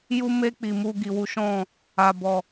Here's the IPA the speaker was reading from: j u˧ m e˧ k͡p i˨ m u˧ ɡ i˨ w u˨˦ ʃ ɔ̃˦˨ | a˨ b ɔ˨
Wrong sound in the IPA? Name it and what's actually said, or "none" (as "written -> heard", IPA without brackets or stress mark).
none